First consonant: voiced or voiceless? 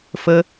voiceless